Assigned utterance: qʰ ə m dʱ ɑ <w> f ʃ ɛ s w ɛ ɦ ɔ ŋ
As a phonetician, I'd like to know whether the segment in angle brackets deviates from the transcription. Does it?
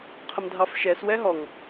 yes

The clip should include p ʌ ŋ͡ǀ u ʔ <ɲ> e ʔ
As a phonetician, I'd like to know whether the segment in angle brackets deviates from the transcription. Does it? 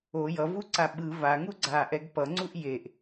yes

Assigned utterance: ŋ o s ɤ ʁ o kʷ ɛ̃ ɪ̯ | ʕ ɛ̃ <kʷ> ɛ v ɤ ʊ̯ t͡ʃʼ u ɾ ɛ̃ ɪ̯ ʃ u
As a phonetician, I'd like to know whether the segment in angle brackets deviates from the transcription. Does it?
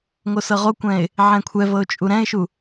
yes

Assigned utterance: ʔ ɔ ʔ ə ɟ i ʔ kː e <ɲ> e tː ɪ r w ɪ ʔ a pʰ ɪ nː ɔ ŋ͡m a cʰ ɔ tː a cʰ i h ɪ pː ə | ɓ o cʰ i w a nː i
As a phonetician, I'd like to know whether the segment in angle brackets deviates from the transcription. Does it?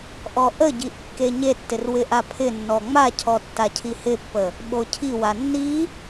no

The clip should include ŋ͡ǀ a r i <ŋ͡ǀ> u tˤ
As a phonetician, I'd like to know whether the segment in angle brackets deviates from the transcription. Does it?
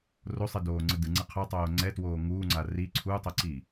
yes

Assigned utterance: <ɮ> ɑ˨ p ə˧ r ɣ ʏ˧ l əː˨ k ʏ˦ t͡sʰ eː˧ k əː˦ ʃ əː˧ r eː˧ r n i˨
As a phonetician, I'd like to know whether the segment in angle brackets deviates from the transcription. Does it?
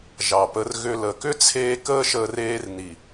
yes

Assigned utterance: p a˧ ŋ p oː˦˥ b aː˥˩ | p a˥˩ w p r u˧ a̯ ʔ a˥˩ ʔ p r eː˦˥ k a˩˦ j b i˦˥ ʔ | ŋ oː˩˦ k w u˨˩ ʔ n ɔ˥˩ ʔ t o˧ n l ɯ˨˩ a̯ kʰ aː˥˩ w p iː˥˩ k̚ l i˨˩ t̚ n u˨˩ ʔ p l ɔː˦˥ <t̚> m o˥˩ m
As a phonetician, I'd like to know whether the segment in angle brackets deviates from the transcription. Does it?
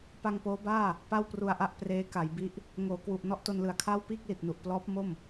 yes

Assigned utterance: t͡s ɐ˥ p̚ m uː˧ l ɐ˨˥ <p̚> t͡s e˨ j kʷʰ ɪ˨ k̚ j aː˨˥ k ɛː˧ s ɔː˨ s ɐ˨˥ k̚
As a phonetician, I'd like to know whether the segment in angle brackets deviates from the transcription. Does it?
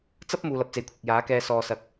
no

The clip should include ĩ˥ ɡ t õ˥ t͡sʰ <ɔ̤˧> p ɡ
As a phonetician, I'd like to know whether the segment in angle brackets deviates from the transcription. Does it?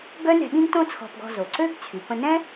no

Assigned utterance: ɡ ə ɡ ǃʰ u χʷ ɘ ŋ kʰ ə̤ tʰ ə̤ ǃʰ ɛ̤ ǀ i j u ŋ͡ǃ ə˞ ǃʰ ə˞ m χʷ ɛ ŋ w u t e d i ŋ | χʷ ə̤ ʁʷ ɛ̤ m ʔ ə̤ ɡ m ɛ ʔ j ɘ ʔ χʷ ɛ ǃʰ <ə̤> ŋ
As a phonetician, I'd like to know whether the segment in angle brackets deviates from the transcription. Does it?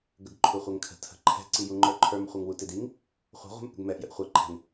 yes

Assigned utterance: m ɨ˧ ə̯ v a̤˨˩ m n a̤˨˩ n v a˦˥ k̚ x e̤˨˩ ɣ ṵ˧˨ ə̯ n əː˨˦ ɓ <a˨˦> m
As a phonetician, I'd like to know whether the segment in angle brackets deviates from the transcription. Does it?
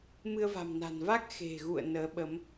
yes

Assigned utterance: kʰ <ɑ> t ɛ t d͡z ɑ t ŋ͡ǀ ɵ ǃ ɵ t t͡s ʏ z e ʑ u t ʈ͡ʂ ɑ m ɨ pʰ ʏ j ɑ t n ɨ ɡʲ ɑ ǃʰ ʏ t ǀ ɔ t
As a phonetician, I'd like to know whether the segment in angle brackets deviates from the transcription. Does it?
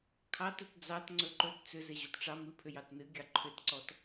no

